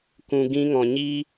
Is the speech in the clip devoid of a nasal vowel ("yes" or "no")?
no